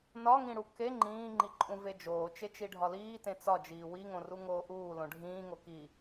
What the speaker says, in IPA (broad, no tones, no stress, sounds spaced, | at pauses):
n ɒ ŋ ĩ ɽ u k e ŋ͡ǃ ĩː ŋ͡ǃ i ǃʼ ũ v e d͡ʒ oː t͡ʃ e t͡ʃ i ɖʱ ɒ l iː t ẽ t͡s ɒ d͡ʒ iː w i ŋ õ r u ŋ oː ʔ uː l õ ɖʱ ĩː ŋ o k i